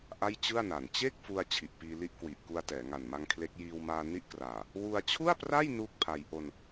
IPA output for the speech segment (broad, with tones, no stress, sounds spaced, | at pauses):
ʔ a˥˩ j t͡ɕ ɯ˥˩ a̯ n a˨˩ n t͡ɕ eː˥˩ k̚ f u˧ a̯ t͡ɕʰ i˨˩ ʔ p iː˧ l i˦˥ ʔ k w i˨˩ ʔ k u˧ a̯ t ɛː˩˦ ŋ a˨˩ n m a˧ ŋ kʰ l e˦˥ k̚ j iː˧ w m aː˧ n i˦˥ ʔ k r aː˨˩ | w u˧ a̯ t͡ɕʰ u˥˩ a̯ p r a˥˩ j n uː˥˩ k̚ pʰ a˧ j ʔ o˧ n